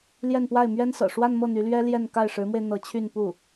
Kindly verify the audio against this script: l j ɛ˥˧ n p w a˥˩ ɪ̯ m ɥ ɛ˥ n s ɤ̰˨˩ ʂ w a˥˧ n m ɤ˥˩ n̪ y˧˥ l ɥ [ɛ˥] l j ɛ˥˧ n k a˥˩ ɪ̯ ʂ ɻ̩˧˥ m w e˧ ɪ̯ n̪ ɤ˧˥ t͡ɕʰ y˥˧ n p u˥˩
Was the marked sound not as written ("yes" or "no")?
no